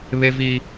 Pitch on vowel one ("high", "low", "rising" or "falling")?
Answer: high